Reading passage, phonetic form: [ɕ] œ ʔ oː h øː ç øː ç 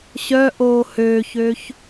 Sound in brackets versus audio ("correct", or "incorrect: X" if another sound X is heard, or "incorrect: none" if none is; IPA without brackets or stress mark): correct